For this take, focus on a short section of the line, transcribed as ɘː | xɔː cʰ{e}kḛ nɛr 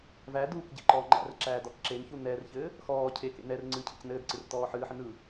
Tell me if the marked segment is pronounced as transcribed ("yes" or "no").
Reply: yes